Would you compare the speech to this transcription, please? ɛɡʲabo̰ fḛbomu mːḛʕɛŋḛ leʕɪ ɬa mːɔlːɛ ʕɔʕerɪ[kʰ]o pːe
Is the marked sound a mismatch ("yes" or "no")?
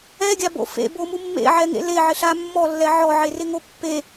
yes